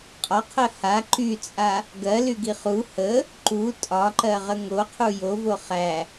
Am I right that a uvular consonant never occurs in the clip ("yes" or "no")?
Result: no